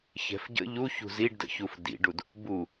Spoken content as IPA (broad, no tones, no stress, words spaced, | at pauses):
çɛ̤fɟə̰ ʎu çṳziɖdə̰çuf dḭɖud | bu